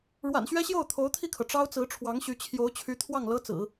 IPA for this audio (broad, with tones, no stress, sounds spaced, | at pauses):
ɻ w a̰˨˩ n ɕ ɥ ɛ˥ ɕ j o˥˩ ʊ̯ t̪ʰ o˧˥ ʊ̯ t̪ʰ i˥˩ kʰ ɤ˩ ʈ͡ʂ ɑ˥ ʊ̯ t͡s ɹ̩˧˥ ʈ͡ʂʰ w ɑ˧˥ ŋ ɕ y˧˥ t͡ɕʰ j o˧˥ ʊ̯ t͡ɕʰ y˧˥ t̪ʰ w ɑ˥˩ ŋ l ɤ˥ t͡s ɹ̩˨˩˦